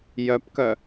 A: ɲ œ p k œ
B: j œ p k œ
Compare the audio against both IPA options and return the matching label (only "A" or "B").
B